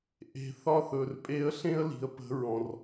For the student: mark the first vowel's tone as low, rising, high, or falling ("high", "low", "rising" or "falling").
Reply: low